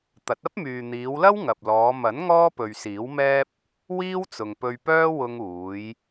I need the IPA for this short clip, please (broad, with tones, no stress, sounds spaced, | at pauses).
t̪ ɐ˨˥ t̚ ɐ˥ p̚ m yː˨ n̪ iː˨˧ w l ɐ˥ w ŋ ɐ˨ p̚ l ɔː˨˧ m ɐ˨˥ n ŋ ɔː˥ p ɵ˨ ɥ s iː˨˥ w m ɛː˥ p̚ | w iː˥ w t͡s ʊ˨ ŋ p ɵ˧ ɥ p œː˥ w ʊ˧ ŋ uː˨˧ j